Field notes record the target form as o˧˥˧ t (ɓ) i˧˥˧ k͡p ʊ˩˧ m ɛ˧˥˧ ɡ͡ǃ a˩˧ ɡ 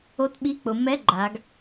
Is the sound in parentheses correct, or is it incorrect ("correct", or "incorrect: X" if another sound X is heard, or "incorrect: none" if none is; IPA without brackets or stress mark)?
correct